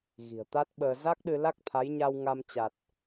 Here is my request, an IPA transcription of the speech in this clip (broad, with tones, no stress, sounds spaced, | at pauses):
ɣ i̤˨˩ ə̯ t̪ a˦˥ t̚ ɓ əː˧ z a˦˥ k̚ ɗ ɨ˧ l a˦˥ k̚ t̪ʰ a˨˦ j ɲ a˧ w ŋ a˧ m t͡ɕ a˨˩ t̚